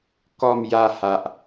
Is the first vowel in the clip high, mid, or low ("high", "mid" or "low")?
mid